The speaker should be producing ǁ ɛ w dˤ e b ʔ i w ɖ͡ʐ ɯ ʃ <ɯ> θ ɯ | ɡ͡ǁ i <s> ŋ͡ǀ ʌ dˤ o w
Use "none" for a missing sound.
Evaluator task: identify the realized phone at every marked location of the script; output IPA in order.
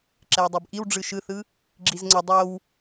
ɯ, z

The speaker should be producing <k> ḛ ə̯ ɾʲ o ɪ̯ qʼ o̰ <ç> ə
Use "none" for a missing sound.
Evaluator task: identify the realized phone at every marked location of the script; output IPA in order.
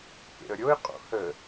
k, h

